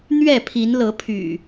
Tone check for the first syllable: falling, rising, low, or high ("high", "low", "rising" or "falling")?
falling